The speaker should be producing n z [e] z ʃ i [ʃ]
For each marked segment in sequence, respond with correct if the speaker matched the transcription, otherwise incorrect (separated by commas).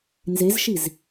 correct, incorrect